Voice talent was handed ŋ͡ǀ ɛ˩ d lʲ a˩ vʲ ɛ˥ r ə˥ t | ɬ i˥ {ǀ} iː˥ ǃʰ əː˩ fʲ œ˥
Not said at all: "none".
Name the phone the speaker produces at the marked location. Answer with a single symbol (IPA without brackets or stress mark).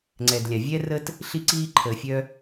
ǀ